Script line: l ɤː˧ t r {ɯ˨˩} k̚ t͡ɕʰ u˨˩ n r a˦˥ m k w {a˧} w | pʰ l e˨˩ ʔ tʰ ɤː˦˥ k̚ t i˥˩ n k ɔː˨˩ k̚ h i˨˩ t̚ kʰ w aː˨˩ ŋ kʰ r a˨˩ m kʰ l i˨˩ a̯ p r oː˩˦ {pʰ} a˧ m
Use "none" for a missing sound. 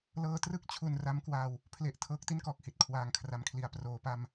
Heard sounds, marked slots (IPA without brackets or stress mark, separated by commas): ɯ˥˩, a˧, p